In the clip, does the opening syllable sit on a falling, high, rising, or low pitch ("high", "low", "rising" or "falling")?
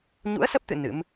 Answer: rising